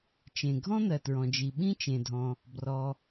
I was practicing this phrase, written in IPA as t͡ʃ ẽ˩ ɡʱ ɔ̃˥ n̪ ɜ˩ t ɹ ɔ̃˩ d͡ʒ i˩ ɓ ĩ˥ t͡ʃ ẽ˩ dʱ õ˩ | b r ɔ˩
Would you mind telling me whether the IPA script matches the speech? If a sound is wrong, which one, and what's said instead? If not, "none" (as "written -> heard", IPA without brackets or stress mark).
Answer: õ˩ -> ɔ̃˩